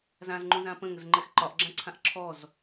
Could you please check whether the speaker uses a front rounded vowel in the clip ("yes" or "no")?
no